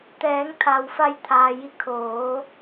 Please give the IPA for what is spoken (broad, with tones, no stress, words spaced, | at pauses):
t̪ɛː˩˧ŋt̪ʰa˩w fa˧jt̪ʰaː˩ji˧ kʰoː˩˧